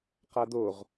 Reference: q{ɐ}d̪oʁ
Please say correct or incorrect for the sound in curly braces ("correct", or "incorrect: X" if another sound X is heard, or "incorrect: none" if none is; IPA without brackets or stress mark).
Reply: incorrect: a